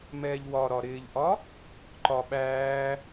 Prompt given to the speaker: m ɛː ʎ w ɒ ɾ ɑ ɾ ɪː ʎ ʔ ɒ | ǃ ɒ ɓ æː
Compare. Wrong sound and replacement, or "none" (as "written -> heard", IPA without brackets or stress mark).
ɑ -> ɒ